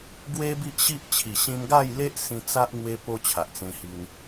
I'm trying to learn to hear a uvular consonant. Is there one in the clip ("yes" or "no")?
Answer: no